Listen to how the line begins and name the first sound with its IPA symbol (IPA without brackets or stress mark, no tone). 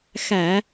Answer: x